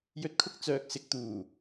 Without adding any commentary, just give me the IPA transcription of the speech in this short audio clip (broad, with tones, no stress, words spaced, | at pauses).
jɵ˨˥t̚ kʰʊ˧k̚ t͡sœː˨k̚sɪ˨k̚ t̪uː˨˩